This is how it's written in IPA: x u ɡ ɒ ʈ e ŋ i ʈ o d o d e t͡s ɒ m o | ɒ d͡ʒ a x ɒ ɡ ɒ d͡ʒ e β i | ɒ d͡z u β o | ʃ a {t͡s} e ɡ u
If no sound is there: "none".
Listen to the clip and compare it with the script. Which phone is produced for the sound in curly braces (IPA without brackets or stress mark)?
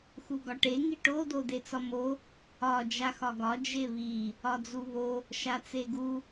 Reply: t͡s